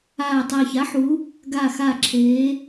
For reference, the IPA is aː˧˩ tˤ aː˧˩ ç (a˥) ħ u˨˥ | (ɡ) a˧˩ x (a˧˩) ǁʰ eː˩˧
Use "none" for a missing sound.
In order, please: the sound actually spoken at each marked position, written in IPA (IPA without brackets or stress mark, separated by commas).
a˥, ɡ, a˧˩